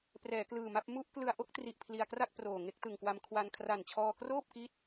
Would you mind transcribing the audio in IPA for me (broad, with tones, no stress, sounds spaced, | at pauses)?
p r ɛː˩˦ k l ɯː˨˩ m a˥˩ p̚ m u˥˩ ʔ k l ɯ˧ a̯ ʔ o˥˩ k̚ t r i˨˩ ʔ pʰ l i˧ a̯ k r a˥˩ k̚ p r oː˨˩ ŋ e˥˩ k̚ t ɯ˨˩ ŋ k w a˧ m kʰ w a˧ n kʰ r a˨˩ n t͡ɕʰ ɔː˧ k r oː˥˩ p̚ k i˦˥ t̚